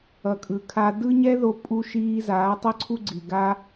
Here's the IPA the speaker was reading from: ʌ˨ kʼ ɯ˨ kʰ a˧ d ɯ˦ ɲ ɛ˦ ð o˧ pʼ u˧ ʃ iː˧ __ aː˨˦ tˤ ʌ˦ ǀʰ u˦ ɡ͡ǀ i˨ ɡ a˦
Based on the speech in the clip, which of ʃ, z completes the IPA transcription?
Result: z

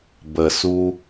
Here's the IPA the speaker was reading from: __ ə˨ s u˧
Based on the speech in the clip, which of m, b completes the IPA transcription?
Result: b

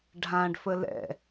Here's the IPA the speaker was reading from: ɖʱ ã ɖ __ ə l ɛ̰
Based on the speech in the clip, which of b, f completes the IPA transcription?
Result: f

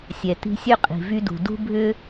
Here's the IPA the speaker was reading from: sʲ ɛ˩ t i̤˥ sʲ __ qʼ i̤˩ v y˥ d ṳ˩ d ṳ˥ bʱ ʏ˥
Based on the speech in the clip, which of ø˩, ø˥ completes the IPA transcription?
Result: ø˥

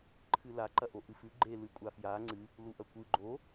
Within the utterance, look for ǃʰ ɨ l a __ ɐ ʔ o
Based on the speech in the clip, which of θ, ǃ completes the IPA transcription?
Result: ǃ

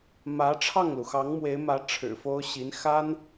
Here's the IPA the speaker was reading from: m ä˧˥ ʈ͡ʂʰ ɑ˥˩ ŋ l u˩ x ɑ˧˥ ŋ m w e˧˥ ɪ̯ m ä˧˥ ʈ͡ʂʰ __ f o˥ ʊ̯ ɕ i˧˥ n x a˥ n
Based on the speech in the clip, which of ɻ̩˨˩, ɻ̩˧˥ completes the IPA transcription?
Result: ɻ̩˨˩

